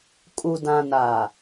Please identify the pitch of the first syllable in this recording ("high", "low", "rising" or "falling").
low